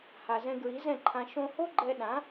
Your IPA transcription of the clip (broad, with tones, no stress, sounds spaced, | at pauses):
h a˩ z ɛ̃˧ ɡ ɹ i˩˥ z ɛ̃˥˩ ǃʰ ã˧ ʃ õ˧ h o˥ ɡ͡ǃ ɛ˧ ɗ ã˩˥